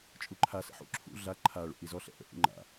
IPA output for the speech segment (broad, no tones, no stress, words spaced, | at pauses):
t͡ʃʼuǃʰa sə̰ħṵ ǁʰṵ ɮa ǃʰa ɭṵʔizɔ ɬɛ̰ʔə̰ ʔṵŋ͡ǃa̰